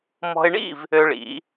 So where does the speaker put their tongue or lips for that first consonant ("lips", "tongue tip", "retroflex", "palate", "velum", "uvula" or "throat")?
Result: lips